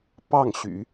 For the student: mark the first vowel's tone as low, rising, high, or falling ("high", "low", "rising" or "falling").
falling